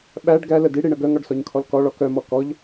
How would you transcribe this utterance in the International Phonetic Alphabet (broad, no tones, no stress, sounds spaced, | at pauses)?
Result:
ɓ æ ɖ ɡ æ l ə d i ɽ i ɳ ə ɡ œ ŋ ɔ ɖ s ɔ ɲ kʰ ɔ l k ɔ ɭ ɔ k œ m ɔ k ɔ ʎ